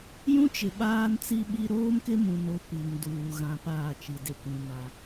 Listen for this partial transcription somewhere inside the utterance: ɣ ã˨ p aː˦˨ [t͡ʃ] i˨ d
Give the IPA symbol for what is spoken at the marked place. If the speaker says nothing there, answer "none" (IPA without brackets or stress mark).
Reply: t͡ʃ